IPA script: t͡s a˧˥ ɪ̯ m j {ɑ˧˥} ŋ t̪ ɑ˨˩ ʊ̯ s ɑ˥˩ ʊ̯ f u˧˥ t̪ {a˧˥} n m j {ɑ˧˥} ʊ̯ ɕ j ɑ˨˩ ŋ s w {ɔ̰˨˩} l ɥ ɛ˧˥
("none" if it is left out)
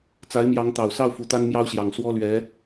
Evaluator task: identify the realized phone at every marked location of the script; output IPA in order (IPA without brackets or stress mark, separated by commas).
ɑ˧˥, a˥, ɑ˥, ɔ˥